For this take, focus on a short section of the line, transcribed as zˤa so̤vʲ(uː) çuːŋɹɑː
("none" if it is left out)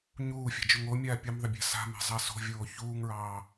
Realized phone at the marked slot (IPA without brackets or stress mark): oː